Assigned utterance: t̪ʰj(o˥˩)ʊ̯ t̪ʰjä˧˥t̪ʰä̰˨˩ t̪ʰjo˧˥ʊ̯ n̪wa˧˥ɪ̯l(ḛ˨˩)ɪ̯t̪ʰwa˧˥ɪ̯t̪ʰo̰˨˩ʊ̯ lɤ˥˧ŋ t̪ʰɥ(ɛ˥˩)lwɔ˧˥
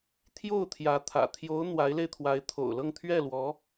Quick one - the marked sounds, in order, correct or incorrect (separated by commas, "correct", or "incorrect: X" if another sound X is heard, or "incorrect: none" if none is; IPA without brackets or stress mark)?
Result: correct, incorrect: e˧, correct